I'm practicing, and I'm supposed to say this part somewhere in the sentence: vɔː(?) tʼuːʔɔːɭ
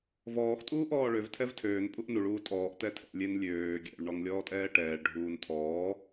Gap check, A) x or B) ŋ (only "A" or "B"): A